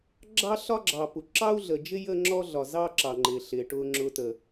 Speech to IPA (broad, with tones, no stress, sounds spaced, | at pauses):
ɡ͡ǁ ɑ˦ ɬ ɒ˦ ɡ͡ǁ ɑ˨ p u˨ ǁ ɑ˦ u̯ ɮ ə˨ d͡ʒ ɪ˦ j ə˦ ŋ͡ǁ ɔ˦ ɮ ɒ˨ z ɑ˦ ǁ ɑ˨ ŋ͡ǃ ɪː˨ ɬ ɪː˨ ʈ ʊː˦ ŋ͡ǁ ʊ˦ t ə˨